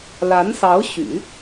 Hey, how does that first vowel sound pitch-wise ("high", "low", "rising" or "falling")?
rising